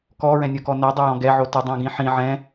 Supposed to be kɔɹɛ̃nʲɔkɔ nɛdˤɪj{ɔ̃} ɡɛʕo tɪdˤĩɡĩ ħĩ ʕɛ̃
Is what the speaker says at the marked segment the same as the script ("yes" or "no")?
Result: yes